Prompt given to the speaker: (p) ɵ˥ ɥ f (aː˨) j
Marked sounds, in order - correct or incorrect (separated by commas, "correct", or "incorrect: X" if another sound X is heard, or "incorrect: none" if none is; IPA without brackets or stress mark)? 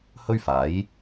incorrect: h, incorrect: aː˨˥